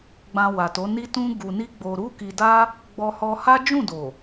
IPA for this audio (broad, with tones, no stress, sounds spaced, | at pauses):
ɡ͡b ã˧ w a˨ t o˨˦ n i˦ t ũ˦ ɡ u˧ n i˦ ɡ͡b o˧ ɾ u˦ k i˧ d a˦ | ɡ͡b ɔ˧ h ɔ˧ h a˦ d͡ʒ ũ˦˨ d o˨